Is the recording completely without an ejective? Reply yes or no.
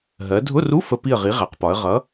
yes